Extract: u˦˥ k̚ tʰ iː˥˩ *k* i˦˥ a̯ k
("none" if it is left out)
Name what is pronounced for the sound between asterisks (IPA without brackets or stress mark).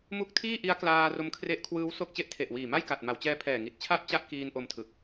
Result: ʔ